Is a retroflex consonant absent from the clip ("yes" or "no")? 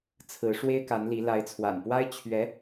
no